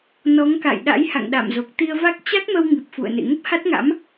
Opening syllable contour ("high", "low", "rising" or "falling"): rising